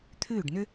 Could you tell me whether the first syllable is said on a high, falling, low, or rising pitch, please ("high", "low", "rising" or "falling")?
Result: falling